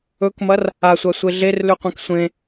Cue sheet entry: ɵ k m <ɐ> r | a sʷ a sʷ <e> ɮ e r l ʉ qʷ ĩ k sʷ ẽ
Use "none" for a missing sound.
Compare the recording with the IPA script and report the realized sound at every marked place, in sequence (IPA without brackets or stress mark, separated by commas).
ɐ, e